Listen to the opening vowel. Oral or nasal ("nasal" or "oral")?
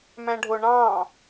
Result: nasal